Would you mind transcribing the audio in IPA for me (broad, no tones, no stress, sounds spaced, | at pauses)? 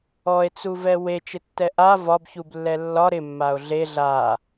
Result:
ɔ e̯ t͡s u v ɛ w e t͡ʃ ɪ tː ɛ ʔ a v ɒ b ç u b lː ɛ lː ɒ ɾ ɪ mː a o̯ ɮ e ɮ a